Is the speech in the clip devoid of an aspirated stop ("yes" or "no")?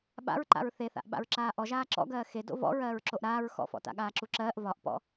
yes